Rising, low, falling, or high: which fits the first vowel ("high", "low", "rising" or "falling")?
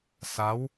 rising